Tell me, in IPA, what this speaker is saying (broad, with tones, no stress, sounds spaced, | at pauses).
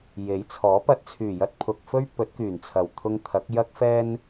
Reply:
j e˨˥ j t͡sʰ ɔː˨˥ p ɐ˧ t̚ t͡sʰ yː˨˩ j ɐ˧ t̚ pʰ ʊ˨ k̚ f ɵ˥ ɥ p ɵ˨˥ t̚ k yː˨˩ n t͡sʰ ɐ˨˩ w t̪ʰ ʊ˧ ŋ t̪ʰ ɐ˨˥ k̚ j ɐ˧ k̚ f ɛː˧ n